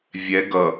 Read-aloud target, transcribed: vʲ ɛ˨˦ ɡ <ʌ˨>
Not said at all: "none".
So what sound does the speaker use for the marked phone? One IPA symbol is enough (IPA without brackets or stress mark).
ʌ˨